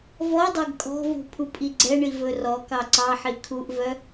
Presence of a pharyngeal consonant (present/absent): present